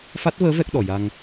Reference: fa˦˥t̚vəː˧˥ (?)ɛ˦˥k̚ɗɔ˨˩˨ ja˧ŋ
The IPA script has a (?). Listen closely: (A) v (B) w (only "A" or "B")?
A